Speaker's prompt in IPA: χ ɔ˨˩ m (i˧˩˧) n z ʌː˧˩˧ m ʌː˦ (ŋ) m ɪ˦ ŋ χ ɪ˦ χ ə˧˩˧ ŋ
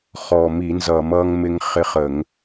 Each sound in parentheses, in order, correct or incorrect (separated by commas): correct, correct